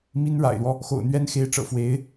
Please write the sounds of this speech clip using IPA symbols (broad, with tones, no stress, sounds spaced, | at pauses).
m i˥ n ɻ a̰˨˩ ɪ̯ l w ɔ˦ | x o̰˨˩ ʊ̯ n̪ ɥ ɛ˥ n x e˧˥ ɪ̯ ʈ͡ʂ ɤ̰˨˩ f w e˧˥ ɪ̯